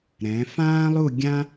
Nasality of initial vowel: nasal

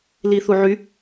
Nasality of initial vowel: oral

